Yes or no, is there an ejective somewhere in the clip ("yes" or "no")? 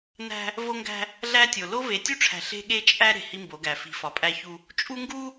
yes